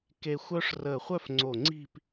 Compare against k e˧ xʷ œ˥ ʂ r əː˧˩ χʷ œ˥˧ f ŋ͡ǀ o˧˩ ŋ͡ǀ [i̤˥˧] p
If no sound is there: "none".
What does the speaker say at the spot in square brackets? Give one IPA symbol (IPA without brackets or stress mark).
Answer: i̤˥˧